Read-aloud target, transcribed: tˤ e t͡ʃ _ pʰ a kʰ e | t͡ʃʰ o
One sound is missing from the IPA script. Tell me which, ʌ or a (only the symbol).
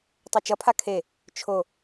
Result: ʌ